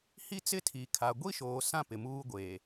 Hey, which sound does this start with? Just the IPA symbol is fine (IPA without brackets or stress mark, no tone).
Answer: h